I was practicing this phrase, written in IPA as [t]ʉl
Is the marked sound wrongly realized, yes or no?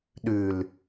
yes